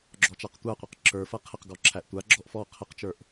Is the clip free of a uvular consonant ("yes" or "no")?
no